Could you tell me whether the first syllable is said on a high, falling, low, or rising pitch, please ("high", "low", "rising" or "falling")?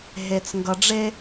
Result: low